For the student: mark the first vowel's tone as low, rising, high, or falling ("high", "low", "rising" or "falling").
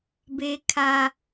high